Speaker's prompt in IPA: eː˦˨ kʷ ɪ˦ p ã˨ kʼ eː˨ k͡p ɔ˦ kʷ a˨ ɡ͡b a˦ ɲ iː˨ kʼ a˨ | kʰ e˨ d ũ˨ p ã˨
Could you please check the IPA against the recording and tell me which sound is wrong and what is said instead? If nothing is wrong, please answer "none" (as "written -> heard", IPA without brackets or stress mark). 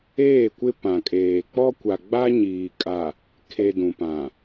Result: none